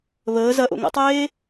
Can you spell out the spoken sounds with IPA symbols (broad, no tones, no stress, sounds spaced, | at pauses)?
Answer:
β əː z ɐ ʔ o̰ ŋ ə̰ tˤ eː